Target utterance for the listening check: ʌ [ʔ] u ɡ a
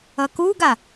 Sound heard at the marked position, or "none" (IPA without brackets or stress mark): k